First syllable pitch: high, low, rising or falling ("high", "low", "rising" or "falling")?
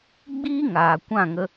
high